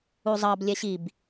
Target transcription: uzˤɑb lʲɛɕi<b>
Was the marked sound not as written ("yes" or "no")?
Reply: no